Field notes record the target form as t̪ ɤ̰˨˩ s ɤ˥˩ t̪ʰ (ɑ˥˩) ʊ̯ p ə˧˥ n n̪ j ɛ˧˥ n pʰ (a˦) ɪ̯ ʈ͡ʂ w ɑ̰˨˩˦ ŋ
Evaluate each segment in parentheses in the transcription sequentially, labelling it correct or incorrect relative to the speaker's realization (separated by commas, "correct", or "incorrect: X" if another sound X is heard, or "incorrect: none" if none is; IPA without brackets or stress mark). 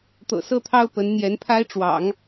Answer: incorrect: ɑ˥, incorrect: a˥